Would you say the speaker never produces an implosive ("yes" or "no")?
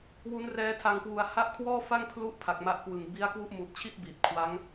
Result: yes